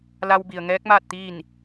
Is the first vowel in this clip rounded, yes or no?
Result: no